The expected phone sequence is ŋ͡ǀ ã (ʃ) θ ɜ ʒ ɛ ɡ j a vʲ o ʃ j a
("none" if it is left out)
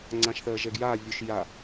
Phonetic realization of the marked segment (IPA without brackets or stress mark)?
ʃ